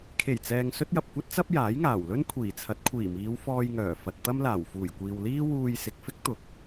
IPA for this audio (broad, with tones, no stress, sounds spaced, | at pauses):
kʰ e˨˩ j t͡s ɛː˨ ŋ s ɵ˥ t̚ j ɐ˨ p̚ kʷ ɐ˥ t̚ t͡s ɐ˥ p̚ j aː˨˥ j ŋ aː˨˩ w l ɵ˥ n kʷʰ iː˨˩ t͡sʰ ɐ˨˥ t̚ kʷʰ iː˨˩ m iː˨˧ w f ɔː˧ j ŋ œː˨˩ f ɐ˨ t̚ t̪ ɐ˥ m l aː˨˩ w f uː˨˩ j kʷ iː˨ w l iː˥ w uː˧ j s ɪ˨ k̚ f ɪ˥ k̚ t̪ ʊ˨˥ k̚